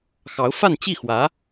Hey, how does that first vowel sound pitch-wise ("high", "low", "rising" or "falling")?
rising